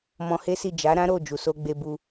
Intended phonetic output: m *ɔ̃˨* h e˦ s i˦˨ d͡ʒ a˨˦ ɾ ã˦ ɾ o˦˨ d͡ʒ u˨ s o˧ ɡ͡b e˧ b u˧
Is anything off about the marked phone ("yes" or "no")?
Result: yes